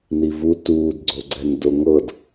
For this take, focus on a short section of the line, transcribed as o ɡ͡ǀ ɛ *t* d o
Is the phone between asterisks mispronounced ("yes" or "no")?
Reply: yes